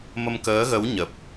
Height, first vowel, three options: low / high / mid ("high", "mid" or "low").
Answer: mid